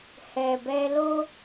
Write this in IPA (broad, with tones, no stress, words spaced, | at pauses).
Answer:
hɛ˨bɛ˧lo˦